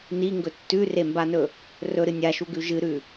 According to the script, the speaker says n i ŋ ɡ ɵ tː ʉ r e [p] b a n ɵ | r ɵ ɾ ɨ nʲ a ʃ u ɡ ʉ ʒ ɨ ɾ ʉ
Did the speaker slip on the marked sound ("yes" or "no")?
yes